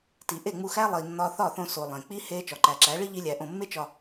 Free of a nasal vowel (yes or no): no